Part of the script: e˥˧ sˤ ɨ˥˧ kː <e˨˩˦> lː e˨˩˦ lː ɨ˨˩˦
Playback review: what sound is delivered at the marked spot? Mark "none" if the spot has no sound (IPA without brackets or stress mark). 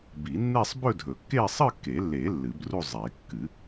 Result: e˨˩˦